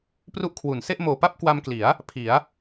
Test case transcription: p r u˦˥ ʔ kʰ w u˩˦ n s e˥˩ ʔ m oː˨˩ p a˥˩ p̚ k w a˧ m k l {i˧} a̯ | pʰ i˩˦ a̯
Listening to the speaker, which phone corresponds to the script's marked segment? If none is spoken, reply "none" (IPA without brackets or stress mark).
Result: i˩˦